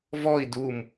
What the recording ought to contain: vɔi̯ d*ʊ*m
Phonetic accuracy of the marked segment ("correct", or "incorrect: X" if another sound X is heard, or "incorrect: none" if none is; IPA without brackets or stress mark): incorrect: u